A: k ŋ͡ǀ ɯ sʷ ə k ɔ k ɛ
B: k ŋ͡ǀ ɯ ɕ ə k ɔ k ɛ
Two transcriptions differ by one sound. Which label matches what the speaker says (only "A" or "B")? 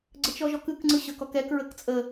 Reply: B